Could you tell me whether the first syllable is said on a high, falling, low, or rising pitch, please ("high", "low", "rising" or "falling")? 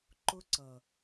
high